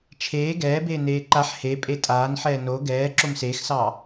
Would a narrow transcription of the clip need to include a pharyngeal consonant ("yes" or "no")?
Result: yes